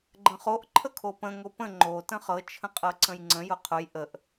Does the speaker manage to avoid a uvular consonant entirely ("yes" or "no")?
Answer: no